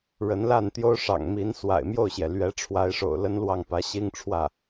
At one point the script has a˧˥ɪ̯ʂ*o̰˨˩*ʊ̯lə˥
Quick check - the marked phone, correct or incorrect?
correct